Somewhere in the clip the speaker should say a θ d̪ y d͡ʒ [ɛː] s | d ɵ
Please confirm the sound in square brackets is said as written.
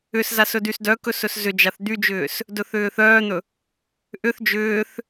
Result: no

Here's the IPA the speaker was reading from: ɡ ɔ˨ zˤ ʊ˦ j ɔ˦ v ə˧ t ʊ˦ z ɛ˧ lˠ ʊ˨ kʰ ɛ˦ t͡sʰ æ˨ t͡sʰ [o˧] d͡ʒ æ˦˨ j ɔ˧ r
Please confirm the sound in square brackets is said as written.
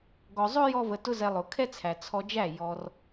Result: no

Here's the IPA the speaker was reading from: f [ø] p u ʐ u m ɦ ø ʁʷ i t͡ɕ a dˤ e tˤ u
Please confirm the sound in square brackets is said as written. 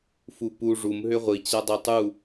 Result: no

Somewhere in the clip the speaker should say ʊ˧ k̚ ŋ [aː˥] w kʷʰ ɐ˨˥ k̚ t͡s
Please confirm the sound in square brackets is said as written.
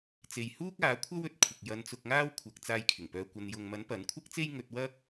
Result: yes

